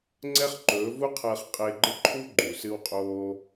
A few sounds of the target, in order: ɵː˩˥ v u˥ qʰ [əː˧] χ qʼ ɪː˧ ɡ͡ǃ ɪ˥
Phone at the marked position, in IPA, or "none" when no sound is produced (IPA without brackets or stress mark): əː˧